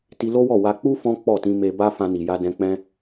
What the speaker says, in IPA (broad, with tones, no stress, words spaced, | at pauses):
ti˧lo˦wɔ˦˨ wa˧k͡pu˦ fɔ̃˦ k͡pɔ˦˨tĩ˧ me˧ba˦ fã˧ni˨ja˧ dɛ̃˧k͡pɛ̃˦